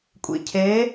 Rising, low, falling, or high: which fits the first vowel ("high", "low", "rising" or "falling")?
low